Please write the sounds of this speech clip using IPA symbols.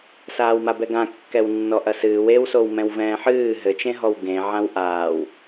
s aː w m a b ɛ ɡ ã kː ɛ w nː ɔ ʔ ɐ s ɨː w e w s o w m ɛ̃ w v ɛ̃ː ħ ɨː ɦ ɘ t͡ʃ ẽ ɦ ɔ w ɡ ẽ ʕ ã w ʔ aː w

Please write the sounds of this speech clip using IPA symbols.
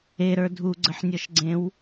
e ɾ ə˞ dʱ u ɡ͡ǀ ə ħ nʲ ɔ ʃ ɡ͡ǀ ẽ w

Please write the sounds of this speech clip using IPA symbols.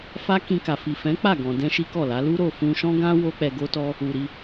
f a˦ k ĩ˧ k a˨ f i˨ f ɛ̃˨˦ k͡p a˦˨ ɡ ɔ̃˨ d ɛ̃˧ ʃ i˦ k ɔ˦˨ l a˨˦ l u˦ ɾ o˦˨ f ũ˧ ʃ ɔ̃˦ ɡ ã˦ w o˦ k͡p ɛ˧ ɡ o˦ t ɔ˦ | u˨ ɾ i˧

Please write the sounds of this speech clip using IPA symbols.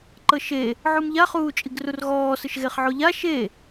ǃ ɤ ʃ e | ʕ u m ʎ a χ uː t͡ʃʼ i ɡ r u r ɣ ɔː s ɯ ʃ ɣ e χ ʕ o ʎ a ʃ e

